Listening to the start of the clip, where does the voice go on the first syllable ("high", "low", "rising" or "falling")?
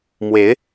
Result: rising